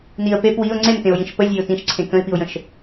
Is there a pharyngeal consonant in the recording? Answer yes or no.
no